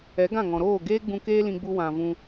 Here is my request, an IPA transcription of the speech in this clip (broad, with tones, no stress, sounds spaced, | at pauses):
ɛ˨˦ ɡ ã˦˨ ŋ ɔ̃˨ ɾ oː˦˨ ɡ eː˦ ɡ͡b ũ˧ k eː˦ l ĩ˧ ɡ͡b u˧ w ã˨ v ũ˧